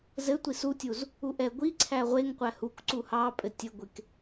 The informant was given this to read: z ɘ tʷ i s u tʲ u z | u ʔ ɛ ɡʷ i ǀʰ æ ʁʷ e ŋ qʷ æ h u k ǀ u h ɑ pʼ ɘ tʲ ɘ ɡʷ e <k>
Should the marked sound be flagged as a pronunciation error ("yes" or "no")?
no